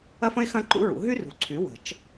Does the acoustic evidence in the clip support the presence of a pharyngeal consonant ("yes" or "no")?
no